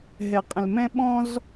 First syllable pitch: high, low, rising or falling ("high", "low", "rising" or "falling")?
low